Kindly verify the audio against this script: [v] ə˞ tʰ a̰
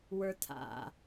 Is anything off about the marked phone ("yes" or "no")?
yes